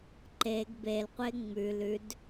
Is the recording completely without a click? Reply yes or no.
no